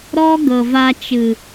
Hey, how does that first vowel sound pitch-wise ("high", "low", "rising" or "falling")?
high